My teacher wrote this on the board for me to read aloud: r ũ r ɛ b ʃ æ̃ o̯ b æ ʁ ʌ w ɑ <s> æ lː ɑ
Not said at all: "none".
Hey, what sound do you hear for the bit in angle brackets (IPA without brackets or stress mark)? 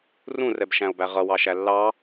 ʃ